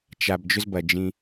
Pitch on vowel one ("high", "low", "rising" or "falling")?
low